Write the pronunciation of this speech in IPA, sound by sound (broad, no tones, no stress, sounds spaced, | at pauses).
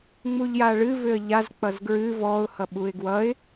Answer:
ŋ͡m u ʎ j a ɭ ɨ v ʏ ə̯ ʎ a z k͡p ʌ z ɡ ɹ ɨ v ɔ ʊ̯ h ʌ ɓ u ɪ̯ ɡ w ʌ ɪ̯